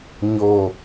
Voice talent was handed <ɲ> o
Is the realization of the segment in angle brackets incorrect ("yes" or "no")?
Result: no